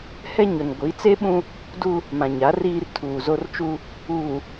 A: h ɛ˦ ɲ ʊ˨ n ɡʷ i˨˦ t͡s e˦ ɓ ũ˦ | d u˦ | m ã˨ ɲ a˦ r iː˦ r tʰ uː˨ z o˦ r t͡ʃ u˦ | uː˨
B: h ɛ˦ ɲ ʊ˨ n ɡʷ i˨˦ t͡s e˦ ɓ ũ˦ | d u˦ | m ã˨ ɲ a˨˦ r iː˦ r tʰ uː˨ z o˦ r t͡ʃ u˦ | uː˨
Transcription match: B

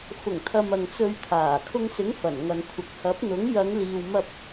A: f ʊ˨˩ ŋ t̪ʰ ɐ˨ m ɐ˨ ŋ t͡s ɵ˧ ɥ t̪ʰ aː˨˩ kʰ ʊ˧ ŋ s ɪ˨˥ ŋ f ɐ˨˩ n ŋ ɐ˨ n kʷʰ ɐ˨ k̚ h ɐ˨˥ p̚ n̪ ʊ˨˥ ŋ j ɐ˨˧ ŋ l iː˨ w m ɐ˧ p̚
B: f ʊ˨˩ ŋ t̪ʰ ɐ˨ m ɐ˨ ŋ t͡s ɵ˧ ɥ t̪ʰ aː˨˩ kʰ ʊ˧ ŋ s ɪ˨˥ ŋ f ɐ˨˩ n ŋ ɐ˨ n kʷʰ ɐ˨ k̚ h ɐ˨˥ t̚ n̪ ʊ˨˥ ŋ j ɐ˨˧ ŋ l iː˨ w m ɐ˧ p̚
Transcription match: A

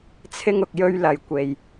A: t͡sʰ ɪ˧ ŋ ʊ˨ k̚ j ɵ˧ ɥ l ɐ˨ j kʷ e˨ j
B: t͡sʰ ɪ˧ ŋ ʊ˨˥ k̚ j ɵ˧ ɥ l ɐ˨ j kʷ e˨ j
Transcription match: A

